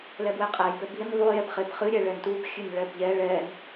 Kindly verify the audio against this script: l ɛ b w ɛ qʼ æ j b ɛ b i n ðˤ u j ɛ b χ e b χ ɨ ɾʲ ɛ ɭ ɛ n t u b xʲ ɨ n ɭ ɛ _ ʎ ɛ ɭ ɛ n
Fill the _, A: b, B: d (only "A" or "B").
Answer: A